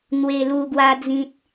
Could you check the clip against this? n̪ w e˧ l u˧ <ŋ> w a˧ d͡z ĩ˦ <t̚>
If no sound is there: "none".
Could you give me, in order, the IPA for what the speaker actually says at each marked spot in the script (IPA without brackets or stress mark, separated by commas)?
ɡ, t̚